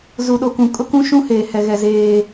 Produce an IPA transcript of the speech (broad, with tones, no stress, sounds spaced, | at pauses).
z u˨ ɗ o˨ k ũ˨ kʼ ʊ˦ k ũ˦ ʃ ũ˦ h eː˨ h ɛ˨ ɣ ɛ˨ z eː˦